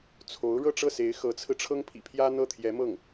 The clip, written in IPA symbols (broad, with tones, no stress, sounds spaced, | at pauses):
t͡sʰ o˧˥ ʊ̯ ɻ ɤ˥˧ ʈ͡ʂ ɤ˥˩ s e˧˥ ɪ̯ x ɤ˧˥ t͡sʰ ɹ̩˧ ʈ͡ʂʰ ɤ˥ ŋ pʰ ḭ˨˩ pʰ j ä˥ n̪ ɤ˥˩ t̪ʰ j ɛ˧˥ m ɤ˥˩ ŋ